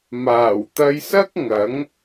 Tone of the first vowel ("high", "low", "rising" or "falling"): low